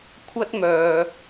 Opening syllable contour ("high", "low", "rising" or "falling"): high